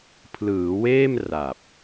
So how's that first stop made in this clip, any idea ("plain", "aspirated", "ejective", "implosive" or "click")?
aspirated